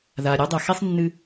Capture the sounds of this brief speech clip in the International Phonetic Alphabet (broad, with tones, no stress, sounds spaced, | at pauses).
ð a˩ ɾʲ u˧ dˤ ɐ˩ x e˥ sˤ nː ɨ˧